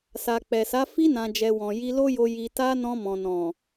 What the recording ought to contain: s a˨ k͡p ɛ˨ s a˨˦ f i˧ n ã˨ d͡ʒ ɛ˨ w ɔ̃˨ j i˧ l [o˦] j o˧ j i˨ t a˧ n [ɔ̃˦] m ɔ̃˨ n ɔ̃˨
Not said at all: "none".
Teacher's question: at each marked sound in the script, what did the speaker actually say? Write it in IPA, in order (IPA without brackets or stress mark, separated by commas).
o˦, ɔ̃˧